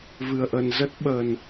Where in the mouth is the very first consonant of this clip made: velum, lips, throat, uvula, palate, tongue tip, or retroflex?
lips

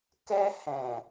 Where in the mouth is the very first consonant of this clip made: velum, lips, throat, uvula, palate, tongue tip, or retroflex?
velum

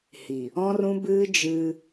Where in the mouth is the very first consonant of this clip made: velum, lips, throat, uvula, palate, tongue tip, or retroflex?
throat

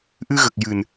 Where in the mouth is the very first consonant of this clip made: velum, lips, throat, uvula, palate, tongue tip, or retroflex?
throat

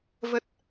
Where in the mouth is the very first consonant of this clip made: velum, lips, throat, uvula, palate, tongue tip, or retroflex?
lips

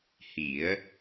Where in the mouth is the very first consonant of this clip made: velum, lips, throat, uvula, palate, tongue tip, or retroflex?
throat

